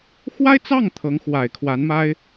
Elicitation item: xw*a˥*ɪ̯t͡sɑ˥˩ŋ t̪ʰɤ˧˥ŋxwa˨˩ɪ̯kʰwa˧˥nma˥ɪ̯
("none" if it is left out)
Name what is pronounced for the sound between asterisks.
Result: a˥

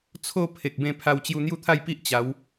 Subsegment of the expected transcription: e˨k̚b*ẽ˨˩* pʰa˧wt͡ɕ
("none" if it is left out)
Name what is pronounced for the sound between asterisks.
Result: ẽ˥˧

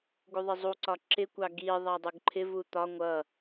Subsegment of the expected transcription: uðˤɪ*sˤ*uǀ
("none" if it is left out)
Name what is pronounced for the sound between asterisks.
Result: zˤ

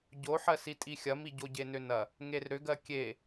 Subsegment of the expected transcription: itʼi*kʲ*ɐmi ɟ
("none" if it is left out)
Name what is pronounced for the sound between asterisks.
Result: xʲ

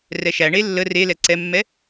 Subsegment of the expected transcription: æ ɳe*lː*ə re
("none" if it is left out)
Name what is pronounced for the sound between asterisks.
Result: lː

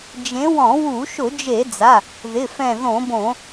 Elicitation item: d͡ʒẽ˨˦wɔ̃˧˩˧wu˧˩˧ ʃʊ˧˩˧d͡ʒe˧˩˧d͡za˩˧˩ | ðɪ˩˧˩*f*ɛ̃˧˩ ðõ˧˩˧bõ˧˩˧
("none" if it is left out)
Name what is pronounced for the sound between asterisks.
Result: f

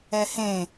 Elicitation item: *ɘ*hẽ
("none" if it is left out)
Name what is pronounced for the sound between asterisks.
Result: ɛ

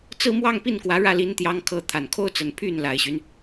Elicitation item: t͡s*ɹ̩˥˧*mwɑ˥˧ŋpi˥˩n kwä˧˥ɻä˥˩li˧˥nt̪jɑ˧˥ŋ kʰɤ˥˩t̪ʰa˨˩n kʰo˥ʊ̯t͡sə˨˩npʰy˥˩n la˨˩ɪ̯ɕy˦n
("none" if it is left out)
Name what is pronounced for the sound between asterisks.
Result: ɹ̩˥˧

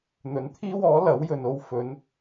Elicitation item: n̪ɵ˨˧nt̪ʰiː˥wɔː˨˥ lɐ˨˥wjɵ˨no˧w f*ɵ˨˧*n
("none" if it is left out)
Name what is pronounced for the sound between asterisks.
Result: ɵ˨˧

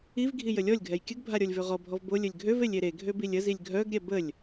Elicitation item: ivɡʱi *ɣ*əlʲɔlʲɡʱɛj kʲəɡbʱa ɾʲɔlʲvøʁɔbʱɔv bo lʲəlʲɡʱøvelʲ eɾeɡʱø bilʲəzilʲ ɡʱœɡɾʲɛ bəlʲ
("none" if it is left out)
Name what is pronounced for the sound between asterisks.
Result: j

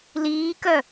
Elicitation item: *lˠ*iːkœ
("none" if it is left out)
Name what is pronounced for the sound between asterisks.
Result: l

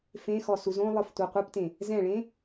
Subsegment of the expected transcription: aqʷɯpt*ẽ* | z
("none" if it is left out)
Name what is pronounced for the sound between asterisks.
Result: ẽ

